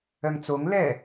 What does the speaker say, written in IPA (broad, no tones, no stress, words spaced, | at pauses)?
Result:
œŋt͡soŋ lɛ